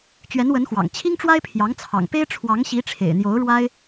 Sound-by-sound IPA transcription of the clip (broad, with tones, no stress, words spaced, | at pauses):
t͡ɕɥɛ˧˥nwə˧˥nxwɑ̰˨˩ŋ t͡ɕʰi˥ŋʈ͡ʂwa˥ɪ̯pʰjɑ˧˥ŋ t͡sʰɑ̰˨˩ŋpe˥ɪ̯ ʈ͡ʂʰwɑ˧˥ŋɕi˧˥ʈ͡ʂʰḛ˨˩ɪ̯n̪jo˧˥ʊ̯ ɻwa˥ɪ̯